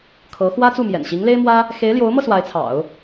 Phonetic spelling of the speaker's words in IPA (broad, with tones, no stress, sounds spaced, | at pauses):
kʰ ɤ˧˥ x w ä˥ t͡s u˥˩ m j ɛ̰˨˩ n ɕ i˧˥ ŋ l e˥ ɪ̯ m w ä˥ | x e˧˥ ɪ̯ l j o˧˥ ʊ̯ m ɤ˧ s w a˧˥ ɪ̯ t͡sʰ ɑ̰˨˩˦ ʊ̯